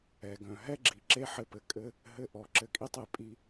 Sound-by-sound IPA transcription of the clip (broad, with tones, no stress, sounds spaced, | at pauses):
ɛ˨ ɡ œ̃˨ ɦ ɛ˦ ɡ͡ǁ i˨ ǁ e˦ ħ ɘ˧ p ɘ˨ kʼ ɘ˦ | ɦ ɘ˧ ʔ ɔ˨ ǁ ɘ˨ kʼ i˧ tˤ e˨ pʼ i˧